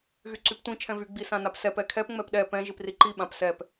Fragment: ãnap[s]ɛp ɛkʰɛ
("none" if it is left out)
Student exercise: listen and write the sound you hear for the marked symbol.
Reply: s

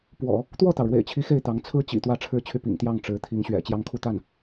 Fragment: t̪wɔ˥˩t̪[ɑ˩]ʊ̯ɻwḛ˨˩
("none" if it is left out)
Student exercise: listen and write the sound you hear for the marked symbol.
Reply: ɑ˩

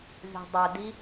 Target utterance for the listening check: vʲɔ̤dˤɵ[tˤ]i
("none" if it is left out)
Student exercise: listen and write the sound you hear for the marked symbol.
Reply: d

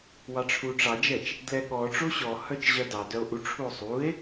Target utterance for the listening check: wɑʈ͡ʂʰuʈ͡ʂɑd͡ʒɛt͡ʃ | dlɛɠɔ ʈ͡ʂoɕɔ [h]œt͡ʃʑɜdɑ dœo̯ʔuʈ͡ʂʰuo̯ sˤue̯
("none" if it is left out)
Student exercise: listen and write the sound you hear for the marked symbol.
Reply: h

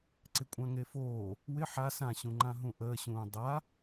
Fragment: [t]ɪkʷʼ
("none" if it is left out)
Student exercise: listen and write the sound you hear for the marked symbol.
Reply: ǀ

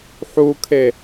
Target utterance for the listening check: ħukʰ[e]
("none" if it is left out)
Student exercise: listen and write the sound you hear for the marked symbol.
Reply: e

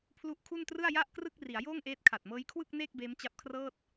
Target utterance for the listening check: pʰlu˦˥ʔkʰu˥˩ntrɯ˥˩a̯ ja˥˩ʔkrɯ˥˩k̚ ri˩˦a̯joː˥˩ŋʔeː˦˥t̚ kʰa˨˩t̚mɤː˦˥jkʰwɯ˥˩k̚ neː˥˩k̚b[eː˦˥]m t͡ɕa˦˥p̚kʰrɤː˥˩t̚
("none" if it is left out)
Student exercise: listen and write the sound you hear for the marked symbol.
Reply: eː˦˥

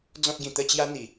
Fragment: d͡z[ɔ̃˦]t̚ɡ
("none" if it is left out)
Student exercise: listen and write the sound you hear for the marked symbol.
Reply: ɔ̃˦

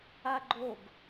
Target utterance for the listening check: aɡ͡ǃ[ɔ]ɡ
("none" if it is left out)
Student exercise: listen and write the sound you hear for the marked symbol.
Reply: o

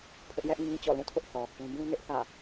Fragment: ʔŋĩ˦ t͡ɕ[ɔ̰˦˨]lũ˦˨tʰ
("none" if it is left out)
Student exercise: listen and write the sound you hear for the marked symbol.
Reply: ɔ̰˦˨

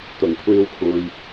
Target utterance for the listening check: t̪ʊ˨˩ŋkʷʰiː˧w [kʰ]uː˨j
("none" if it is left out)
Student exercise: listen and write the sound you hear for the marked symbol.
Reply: kʰ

